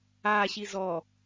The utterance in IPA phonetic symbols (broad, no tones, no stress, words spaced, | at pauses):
aːɕi zɔ